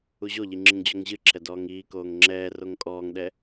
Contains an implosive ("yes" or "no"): yes